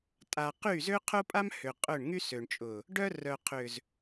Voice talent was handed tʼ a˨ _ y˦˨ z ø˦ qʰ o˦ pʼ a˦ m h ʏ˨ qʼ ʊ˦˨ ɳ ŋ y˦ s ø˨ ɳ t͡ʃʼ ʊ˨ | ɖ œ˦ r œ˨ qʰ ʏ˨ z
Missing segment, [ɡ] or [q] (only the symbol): q